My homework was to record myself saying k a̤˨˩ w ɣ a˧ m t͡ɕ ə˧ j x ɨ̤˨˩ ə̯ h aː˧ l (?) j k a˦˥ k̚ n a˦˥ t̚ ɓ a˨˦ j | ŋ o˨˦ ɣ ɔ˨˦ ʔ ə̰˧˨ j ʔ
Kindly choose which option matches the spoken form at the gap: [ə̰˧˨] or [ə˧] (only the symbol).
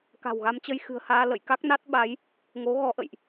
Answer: ə̰˧˨